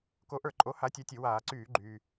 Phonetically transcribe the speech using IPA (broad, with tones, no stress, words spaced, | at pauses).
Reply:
ko˨˥ʔə˞˧˩ǃʼo˨˥ ha˨˥tʲa˨˥tʲɘ˧˩˧ waː˧˩˧ǀyː˧˩˧ ɡ͡ǃyː˩